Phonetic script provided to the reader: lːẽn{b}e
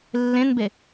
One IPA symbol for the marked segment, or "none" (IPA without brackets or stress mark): b